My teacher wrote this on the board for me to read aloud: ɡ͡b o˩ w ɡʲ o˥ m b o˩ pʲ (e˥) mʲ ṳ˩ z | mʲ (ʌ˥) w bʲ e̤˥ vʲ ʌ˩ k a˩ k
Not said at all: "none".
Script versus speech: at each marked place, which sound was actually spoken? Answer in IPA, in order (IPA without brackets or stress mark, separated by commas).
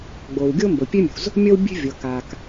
e˥, ʌ˥